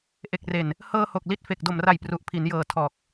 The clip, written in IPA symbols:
ʔ e˨˩ k̚ r e˨˩ n | h ɤː˧ h o˨˩ k̚ l i˦˥ t̚ f e˨˩ k̚ d o˨˩ m r a˨˩ j p r u˨˩ ʔ pʰ i˩˦ n j ɤː˨˩ tʰ ɔː˨˩ k̚

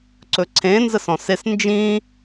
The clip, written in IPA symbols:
ǀ ɵ ǀʰ ẽ n z ə s ɔ̃ s e s n d͡ʒ ĩː

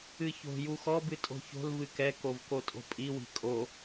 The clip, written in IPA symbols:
ɨ ç o̤ j u x ɔ b ɨ tʼ o̤ ç o̤ l v ɨ k ɛ k o v k o tʼ o̤ pʼ i w i̤ kʼ o

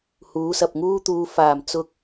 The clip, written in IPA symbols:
h uː˨˥ s ɐ˨ p̚ ŋ uː˥ t̪ uː˧ f aː˨˩ m t͡s ʊ˨ k̚

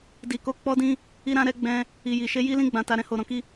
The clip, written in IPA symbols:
d i˨ k o˨˦ k͡p ɔ˧ d ĩ˧ | i˧ ɾ ã˧ ɾ ɛ˧ ɡ͡b ɛ̃˧ | i˨ j i˨ ʃ e˧ j i˦ l ĩ˦ ɡ͡b ã˧ t a˧ ɾ ɛ̃˧ h o˧ ɾ ɔ̃˧ k i˦

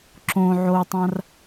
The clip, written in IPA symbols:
ǁ õ ʕ o tˤ ã r

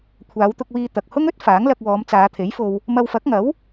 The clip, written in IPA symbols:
kʷʰ aː˨˧ w t̪ ʊ˧ k̚ w iː˧ t̪ ɐ˨ k̚ h ʊ˥ ŋ ɵ˥ t̚ f aː˨˥ ŋ l ɐ˧ k̚ w ɔː˨˧ m t͡s aː˨˧ t̪ʰ e˨˥ j f o˧ w | m ɐ˧ w f ɐ˨˥ k̚ ŋ ɐ˨˥ w

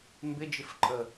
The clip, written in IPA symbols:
m b ɪ d͡ʒ ɪ f ǃʼ ə

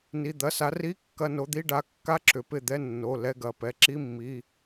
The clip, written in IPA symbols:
n i˩˧˩ d̪ ɐ˩˧˩ s a˨˦ r i˧˥˧ kː ɐ˧˥˧ n o˨˦ d̪ i˧˥˧ ɖ a˨˦ kː a˧˥˧ ǁ ʏ˩ p ɪ˥˩ d̪ ɛ˧˥˧ nː o˩˧˩ l ɛ˧˥˧ ɡ ɐ˩˧˩ p ɛ˨˦ ǁ i˧˥˧ mː i˩˧˩

